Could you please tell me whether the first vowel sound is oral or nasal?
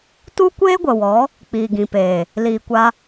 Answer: oral